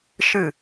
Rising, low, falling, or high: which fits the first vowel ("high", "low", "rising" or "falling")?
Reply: falling